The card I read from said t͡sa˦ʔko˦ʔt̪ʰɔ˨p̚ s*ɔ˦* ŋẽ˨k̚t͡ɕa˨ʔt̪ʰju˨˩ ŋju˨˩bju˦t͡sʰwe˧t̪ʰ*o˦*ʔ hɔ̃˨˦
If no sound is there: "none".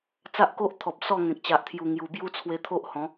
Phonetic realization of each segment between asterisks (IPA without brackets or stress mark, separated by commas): ɔ˥˧, o˦